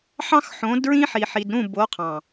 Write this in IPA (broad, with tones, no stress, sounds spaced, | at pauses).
ħ ɑ̃˦ x ħ õ˨˦ d ɹ ĩ˦ ħ i˨ ħ i˨ d ɾ ũ˦˨ b o˨˦ qʰ ɑ̃˨